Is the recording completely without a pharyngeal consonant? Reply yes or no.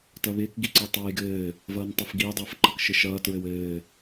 yes